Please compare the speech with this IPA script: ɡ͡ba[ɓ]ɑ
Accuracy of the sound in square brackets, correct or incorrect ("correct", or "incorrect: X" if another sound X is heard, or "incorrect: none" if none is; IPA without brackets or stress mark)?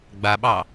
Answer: correct